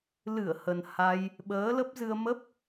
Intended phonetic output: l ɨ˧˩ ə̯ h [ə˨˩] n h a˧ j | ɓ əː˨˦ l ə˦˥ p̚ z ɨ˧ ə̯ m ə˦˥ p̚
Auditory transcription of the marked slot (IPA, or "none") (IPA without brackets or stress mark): ə˨˩